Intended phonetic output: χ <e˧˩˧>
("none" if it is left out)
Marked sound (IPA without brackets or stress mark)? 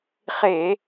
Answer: e˧˩˧